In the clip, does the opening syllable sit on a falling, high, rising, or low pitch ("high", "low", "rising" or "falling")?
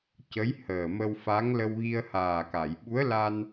rising